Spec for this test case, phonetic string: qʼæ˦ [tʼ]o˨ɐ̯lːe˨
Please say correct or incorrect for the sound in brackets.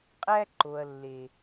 incorrect